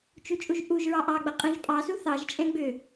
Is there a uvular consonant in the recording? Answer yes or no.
yes